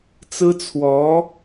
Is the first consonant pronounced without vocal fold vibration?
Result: yes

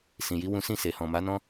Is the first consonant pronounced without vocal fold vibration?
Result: yes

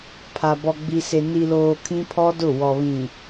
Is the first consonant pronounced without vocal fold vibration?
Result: yes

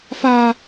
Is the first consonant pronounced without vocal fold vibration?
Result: yes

